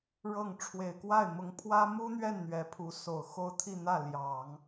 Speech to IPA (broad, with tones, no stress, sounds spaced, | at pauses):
ɻ ɤ˥˩ ŋ ʈ͡ʂʰ w e˨˩ ɪ̯ k w a˥˩ ɪ̯ m ʊ˧˥ ŋ pʰ w ä˥ m u˥ n̪ ɥ ɛ˥˩ n n̪ ɥ ɛ˧˥ pʰ u˧˥ s o˨˩ ʊ̯ x o˥ ʊ̯ t̪ʰ i˥˧ n̪ ä˥˩ l j ɑ˨˩˦ ŋ